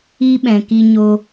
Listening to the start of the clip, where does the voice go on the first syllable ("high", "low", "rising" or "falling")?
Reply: high